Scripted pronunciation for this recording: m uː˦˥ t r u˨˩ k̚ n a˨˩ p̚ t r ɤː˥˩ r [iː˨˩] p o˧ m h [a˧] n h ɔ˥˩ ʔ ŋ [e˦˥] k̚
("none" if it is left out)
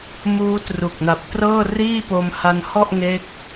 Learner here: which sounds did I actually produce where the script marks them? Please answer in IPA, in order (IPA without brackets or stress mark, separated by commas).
iː˥˩, a˧, e˦˥